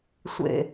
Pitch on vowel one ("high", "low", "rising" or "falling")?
low